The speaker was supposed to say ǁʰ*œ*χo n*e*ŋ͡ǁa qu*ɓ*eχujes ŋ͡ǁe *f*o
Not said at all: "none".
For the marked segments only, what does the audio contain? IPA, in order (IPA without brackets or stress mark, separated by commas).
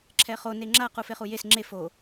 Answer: ɛ, e, f, f